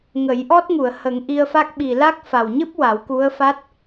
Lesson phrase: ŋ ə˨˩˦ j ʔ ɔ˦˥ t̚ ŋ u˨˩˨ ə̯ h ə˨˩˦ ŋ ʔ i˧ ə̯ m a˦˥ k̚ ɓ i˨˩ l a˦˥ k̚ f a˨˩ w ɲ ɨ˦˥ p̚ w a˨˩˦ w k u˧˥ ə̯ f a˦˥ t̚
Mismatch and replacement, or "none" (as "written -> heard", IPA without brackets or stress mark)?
m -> f